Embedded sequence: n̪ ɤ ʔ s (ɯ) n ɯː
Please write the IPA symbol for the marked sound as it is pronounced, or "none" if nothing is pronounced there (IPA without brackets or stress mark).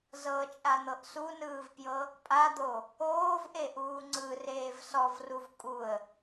u